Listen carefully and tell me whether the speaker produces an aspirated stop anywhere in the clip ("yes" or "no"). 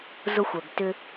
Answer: no